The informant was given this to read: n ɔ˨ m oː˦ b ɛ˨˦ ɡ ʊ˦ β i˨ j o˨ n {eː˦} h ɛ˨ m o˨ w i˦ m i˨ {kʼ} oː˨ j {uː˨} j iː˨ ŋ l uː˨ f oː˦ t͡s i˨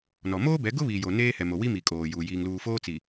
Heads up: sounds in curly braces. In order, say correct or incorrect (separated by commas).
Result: correct, correct, correct